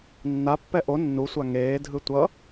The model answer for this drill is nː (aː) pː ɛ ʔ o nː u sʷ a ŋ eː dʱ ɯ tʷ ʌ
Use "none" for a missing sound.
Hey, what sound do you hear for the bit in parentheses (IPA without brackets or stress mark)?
a